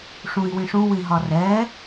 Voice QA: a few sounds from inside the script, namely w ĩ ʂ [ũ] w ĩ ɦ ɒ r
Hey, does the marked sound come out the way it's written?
yes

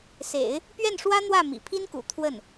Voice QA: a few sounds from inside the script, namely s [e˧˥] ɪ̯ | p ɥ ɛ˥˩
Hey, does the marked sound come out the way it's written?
no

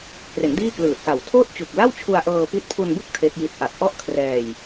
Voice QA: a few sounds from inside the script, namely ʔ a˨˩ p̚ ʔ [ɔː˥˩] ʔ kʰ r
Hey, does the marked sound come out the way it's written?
no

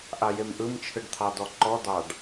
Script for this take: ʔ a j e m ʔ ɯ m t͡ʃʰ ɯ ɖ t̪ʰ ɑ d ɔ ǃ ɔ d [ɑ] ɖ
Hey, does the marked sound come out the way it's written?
yes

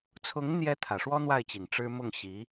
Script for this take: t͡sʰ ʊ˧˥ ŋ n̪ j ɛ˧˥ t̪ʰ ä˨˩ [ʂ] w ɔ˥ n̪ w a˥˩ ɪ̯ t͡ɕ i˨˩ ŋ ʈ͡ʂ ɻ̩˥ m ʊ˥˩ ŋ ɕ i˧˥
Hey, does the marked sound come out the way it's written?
yes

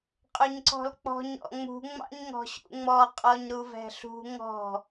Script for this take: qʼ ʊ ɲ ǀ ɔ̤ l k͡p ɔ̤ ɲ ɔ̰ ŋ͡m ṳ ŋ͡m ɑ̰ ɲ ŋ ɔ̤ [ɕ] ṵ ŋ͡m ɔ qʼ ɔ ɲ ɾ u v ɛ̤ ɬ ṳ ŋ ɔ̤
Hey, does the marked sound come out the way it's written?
yes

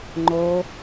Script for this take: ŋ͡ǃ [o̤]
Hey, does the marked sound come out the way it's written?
no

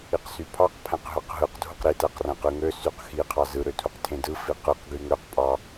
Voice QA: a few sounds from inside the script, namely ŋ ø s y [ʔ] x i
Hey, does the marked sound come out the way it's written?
no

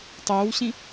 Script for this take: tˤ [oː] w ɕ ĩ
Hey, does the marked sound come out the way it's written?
yes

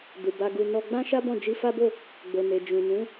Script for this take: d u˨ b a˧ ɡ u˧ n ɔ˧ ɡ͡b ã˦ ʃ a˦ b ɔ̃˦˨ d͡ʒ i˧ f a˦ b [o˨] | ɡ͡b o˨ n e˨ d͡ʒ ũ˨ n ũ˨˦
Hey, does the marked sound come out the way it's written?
no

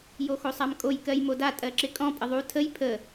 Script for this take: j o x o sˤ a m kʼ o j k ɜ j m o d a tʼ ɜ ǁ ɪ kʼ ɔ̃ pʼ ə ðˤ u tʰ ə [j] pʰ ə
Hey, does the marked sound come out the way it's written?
yes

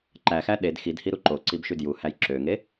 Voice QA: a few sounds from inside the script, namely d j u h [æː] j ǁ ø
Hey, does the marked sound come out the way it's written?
no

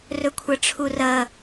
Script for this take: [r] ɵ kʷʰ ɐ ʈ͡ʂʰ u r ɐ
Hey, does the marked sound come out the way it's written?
yes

